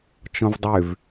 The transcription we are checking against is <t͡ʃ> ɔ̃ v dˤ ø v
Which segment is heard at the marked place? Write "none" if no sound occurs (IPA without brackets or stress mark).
t͡ʃ